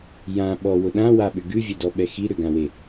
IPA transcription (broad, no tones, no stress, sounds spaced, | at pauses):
j ã ɓ ɔ w ʊ ɗ ã w a ɓ ʏ ɡ ʉ vʲ ɛ d ɔ ɓ ɛ x i ɾ ʏ ɡ ã w e